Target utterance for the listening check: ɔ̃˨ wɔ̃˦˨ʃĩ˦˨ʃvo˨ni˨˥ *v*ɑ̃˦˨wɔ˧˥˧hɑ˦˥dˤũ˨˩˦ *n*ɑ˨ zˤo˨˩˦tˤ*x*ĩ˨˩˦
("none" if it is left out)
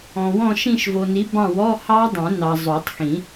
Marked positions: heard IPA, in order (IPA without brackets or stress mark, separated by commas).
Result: b, n, x